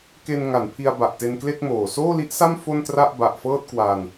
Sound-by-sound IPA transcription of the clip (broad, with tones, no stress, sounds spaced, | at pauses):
k e˧ n ŋ a˩˦ n pʰ i˧ a̯ b a˨˩ ʔ t e˧ n k l e˥˩ k̚ m oː˨˩ s oː˥˩ l i˦˥ ʔ s a˥˩ m f o˥˩ n t r a˥˩ ʔ b a˨˩ ʔ f ɤː˥˩ t̚ k w a˧ n